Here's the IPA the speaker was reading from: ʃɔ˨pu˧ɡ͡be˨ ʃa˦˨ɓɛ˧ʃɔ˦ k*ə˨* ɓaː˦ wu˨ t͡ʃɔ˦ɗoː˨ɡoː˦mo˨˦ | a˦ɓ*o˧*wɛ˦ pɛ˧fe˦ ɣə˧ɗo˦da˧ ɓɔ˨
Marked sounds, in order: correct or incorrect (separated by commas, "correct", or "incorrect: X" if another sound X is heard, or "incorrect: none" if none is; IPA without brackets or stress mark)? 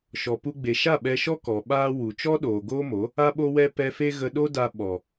incorrect: ɔ˨, incorrect: o˦